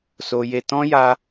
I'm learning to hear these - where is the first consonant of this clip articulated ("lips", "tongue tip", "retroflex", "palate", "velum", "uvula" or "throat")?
tongue tip